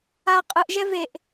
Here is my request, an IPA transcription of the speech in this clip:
a qʼ ɯ ʔ ʒ ɛ v e ʔ

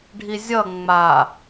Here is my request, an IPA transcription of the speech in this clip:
ɖʱ i zʲ ʌ ŋ͡m a

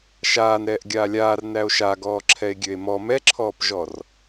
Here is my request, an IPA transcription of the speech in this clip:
ʃ aː n ɾ ɛː ʔ ɡʲ aː lʲ aː r n æ o̯ ʃ a ɡ ɔː ǁʰ ɛ e̯ ɡʲ ø e̯ m ɔ m ɛ ǁʰ ɔː p ʒ ɔ r

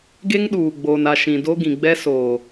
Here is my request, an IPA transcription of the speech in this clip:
ɡ e˦ ŋ ɗ uː˨ ɡ͡b oː˨ n a˨ ʃ ĩ˨ d o˦ ɡ ĩ˨ ɡ͡b ɛ˦ s oː˨

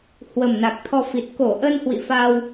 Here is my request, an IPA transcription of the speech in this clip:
h w ə˨˩ m n a˨˩ k̚ t̪ʰ ɔ˧ f i˨˩ t̚ k o˧˩ ʔ ə˧ n h w ḭ˧˨ f a˧ w

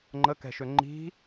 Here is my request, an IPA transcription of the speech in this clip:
ŋ͡ǃ ə k ɛ̤ ʃ ø ŋ͡ǃ i̤

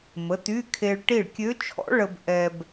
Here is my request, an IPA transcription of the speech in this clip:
m ə˩˧˩ t y˧˥˧ kʰ e˧ ɭ ʈ i˥˩ ɭ kʲ ø˧˥ t͡ʃʰ ɔ̰˧˥ ɭ ə˧ b ʔ ɛ˧ b

